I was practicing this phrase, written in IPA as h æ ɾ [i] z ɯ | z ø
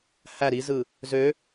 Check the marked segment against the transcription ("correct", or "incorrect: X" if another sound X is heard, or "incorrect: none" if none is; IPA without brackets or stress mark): correct